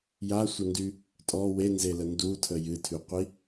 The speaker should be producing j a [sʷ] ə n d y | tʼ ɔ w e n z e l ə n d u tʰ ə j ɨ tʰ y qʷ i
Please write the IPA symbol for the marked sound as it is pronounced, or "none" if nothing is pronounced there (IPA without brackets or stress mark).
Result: sʷ